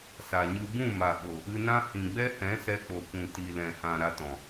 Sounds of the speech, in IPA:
s a˨ ɲ ɨ˧ b ũ˦˨ m a˨ ɓ o˨ | ɨ˧ n ã˦ h ĩ˨ ɡ͡b ɛ˦ h ɛ̃˨˦ s ɛ˧ k͡p o˨ kʷ ũ˨ t i˨ l ɛ̃˨ h ã˨ ɾ a˧ t ɔ̃˨

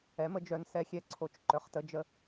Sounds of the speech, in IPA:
ɛ˩˥ m ə˩˥ d͡ʒ œ˩˥ n s ɛ˩˥ xʲ ɛ˨ ǀʰ o˨ t͡ʃ ǃ œ˩˥ χ t ə˩˥ d͡ʒ ə˩˥

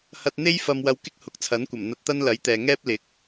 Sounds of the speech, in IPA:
h ɐ˧ t̚ n̪ e˥ j f ɐ˧ m w ɐ˧ w k ɪ˥ k̚ h ʊ˨˥ k̚ t͡sʰ ɐ˨˥ n kʷ ɐ˨˩ m n̪ ɐ˧ t̚ t̪ ɐ˥ n l ɐ˨˥ j t̪ ɛː˨ ŋ ɛː˥ p̚ l ɪ˨˥ k̚

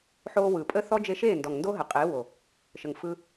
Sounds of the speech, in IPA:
ħ oː˧ w ɯ˨ pʼ ə˦ θ ɔ˦ d͡ʒ e˧ ʃ eː˦˨ n d ɔ˨ ŋ n d o˦ ɦ ə˨ qʼ eː˨˦ w o˨ | ʃ ə˨ ŋ f ɯ˧

